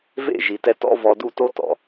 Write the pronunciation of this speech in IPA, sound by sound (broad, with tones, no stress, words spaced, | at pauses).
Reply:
vḛ˦˨ʒi˨tɛ˧ tɔ̰˦vɔ˧ du˦˨to˦tɔ̰˨